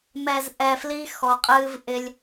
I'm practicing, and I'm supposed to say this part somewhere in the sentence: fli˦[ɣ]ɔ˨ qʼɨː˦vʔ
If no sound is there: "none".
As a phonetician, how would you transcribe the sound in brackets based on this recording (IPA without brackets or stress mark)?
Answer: x